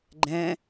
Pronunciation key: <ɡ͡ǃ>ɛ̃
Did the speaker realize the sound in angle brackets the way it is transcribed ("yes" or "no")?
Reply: yes